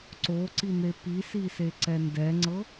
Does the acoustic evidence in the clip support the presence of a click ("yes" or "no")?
yes